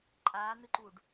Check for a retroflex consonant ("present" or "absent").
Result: present